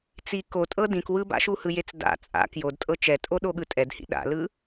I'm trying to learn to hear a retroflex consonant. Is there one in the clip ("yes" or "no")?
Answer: no